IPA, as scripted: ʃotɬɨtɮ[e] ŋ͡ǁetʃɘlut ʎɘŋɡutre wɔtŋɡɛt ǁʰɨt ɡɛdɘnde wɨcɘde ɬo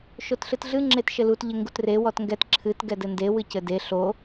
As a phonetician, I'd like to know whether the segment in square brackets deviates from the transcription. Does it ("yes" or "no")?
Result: yes